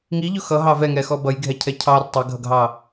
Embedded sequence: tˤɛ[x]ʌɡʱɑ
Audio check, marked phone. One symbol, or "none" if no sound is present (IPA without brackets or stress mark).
ɡʱ